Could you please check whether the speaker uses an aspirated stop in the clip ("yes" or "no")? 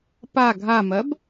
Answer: no